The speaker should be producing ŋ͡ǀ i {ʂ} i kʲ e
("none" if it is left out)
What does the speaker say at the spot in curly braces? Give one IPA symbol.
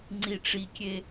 ʈ͡ʂ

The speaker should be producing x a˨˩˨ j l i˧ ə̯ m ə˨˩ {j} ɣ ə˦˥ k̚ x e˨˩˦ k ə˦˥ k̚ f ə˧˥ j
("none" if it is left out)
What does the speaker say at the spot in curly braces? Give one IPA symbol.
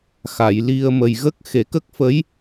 j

